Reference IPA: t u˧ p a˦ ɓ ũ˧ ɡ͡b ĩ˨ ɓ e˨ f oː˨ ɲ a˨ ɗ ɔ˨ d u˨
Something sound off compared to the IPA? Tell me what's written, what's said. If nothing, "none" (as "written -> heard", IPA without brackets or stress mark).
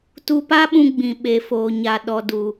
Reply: none